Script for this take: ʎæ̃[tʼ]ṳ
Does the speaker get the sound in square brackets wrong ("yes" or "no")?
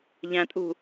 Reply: no